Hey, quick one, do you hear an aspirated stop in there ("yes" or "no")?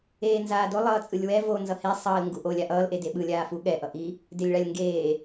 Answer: no